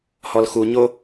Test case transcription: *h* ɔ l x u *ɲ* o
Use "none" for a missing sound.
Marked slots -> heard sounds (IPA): h, ɲ

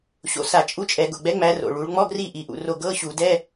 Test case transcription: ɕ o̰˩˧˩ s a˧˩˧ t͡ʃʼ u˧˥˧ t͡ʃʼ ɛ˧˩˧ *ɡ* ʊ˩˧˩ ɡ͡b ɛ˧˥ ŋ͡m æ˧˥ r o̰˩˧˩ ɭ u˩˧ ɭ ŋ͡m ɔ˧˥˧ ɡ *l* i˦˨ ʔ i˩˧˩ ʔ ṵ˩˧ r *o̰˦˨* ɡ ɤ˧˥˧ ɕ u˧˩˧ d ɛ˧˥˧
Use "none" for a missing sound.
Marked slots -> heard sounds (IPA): ɡ, r, o˦˨

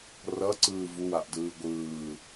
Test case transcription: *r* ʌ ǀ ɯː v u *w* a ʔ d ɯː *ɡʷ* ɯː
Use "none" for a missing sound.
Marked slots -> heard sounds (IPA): r, w, ɡʷ

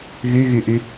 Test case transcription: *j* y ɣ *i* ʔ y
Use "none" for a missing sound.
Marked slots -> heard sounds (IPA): ɣ, y

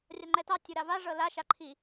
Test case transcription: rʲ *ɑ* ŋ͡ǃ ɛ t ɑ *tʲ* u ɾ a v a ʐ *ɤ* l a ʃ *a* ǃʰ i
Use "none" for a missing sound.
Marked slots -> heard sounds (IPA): a, tʲ, ɤ, a

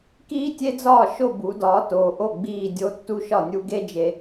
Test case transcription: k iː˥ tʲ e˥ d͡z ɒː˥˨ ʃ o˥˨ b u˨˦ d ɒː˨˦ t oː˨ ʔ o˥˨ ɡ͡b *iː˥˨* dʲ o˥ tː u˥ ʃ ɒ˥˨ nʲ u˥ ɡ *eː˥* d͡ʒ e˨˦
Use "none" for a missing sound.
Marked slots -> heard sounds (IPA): iː˥˨, e˥

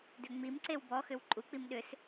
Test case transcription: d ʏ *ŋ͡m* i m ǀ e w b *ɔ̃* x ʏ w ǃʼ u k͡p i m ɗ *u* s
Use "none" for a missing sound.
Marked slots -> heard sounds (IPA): ŋ͡m, ɔ, ʏ

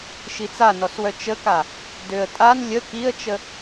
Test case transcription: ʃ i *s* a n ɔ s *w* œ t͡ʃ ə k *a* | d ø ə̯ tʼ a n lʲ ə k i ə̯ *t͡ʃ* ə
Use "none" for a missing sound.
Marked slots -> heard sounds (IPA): t͡s, w, a, t͡ʃ

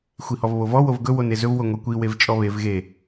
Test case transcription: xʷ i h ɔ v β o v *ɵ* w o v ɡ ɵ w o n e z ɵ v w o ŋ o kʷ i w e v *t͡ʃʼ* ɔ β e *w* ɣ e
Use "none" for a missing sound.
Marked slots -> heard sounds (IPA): ɔ, t͡ʃʼ, v

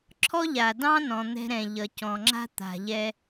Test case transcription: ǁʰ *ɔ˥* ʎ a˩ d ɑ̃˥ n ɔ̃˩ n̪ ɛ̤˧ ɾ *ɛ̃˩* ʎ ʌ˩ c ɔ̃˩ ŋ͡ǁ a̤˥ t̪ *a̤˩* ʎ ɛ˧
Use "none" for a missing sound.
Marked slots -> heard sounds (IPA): ɔ˥, ɛ̃˩, a̤˩

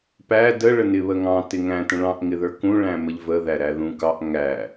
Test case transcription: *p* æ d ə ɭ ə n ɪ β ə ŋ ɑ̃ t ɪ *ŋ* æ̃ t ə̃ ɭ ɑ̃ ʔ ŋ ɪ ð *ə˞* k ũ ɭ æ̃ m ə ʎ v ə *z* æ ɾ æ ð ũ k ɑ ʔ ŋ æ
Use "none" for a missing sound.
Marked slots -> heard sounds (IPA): p, ŋ, ə˞, ð

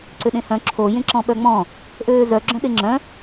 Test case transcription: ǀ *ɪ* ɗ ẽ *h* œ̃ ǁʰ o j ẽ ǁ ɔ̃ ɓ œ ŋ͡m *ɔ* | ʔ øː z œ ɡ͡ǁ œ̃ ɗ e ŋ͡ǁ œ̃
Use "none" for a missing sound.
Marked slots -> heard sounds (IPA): ʏ, h, ɔ̃

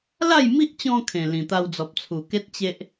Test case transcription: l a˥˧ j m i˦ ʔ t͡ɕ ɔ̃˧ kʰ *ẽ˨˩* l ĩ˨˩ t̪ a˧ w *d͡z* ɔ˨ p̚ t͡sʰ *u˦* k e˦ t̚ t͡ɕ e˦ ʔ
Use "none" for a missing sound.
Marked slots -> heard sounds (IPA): ẽ˨˩, d͡z, u˨˩

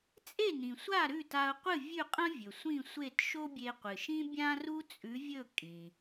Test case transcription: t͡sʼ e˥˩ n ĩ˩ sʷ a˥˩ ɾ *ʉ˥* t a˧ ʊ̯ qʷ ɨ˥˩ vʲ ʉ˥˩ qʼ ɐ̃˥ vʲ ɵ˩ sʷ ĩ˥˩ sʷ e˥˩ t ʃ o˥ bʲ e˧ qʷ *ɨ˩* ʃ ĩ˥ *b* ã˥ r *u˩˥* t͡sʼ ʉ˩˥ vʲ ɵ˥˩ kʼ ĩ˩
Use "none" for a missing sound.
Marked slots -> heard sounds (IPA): ʉ˥˩, ɨ˩, bʲ, u˥

